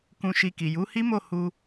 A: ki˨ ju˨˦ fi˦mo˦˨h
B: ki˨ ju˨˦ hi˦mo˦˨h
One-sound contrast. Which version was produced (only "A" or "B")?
B